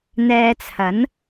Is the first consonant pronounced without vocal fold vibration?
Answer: no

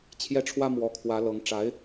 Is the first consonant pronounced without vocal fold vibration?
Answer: yes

